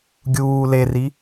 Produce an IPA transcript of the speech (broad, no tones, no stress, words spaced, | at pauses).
ɡʲuː leri